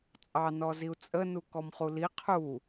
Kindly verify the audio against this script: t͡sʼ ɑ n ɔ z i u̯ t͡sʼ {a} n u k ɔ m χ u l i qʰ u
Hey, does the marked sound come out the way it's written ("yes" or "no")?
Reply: no